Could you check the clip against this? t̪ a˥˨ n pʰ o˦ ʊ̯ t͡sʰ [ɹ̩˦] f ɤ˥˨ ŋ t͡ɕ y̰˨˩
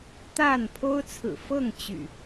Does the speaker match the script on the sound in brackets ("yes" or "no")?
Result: no